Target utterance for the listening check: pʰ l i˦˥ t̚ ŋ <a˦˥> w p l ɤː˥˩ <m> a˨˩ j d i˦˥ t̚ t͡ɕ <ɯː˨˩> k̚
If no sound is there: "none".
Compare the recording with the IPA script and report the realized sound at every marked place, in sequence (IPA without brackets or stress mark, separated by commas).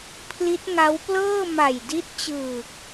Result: a˦˥, m, ɯː˨˩